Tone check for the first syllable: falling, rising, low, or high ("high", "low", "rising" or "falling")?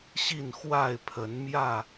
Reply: falling